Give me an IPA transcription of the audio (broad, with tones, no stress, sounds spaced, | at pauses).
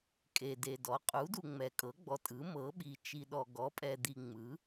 kʼ e˨ d e˨ d ɔ˩˥ qʼ u˩˥ d u˨ ŋ͡m ɛ˨ kʼ ɤ˩˥ ɡ͡b ɔ˨ tʼ ɯ˩˥ m ɤ˩˥ ɓ i˨ t͡ʃ i˨ ɗ ɔ˨ ɡ ɔ˩˥ pʼ ɛ˨ d̪ i˨ ŋ͡m ɯ˩˥